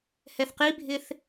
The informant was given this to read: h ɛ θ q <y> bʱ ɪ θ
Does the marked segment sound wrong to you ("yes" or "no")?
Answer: yes